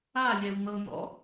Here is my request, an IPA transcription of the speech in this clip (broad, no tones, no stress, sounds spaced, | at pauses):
a lʲ ɛ w n̪ ɤ n̪ ɔ̰